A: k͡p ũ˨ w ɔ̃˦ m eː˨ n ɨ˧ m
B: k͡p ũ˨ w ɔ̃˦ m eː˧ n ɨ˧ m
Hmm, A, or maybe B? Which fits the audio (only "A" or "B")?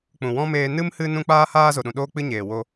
B